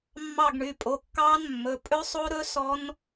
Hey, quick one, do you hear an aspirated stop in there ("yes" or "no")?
no